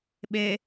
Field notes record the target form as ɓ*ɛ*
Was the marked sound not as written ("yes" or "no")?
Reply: yes